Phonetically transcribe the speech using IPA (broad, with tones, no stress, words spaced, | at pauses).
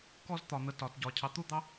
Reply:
kɔ˦zt̪ɒ˨n̪ə˨ tɒ˨tɟɒ˨ cʰɑ˨t̪u˦d̪ɑ˦